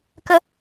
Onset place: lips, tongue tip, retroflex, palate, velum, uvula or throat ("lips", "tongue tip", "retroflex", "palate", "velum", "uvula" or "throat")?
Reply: velum